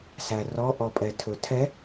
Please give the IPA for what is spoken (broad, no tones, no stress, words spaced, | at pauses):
særɔʔɔ pʼɛtʰɵtʰɛ